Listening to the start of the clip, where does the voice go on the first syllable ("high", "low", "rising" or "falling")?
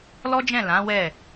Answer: high